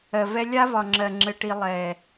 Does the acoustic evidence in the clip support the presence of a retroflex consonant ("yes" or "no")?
yes